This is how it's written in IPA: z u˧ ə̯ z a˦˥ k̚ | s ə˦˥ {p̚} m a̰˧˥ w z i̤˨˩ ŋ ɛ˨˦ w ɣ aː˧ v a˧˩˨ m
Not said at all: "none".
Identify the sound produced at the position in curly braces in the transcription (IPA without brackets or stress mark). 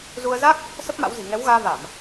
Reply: p̚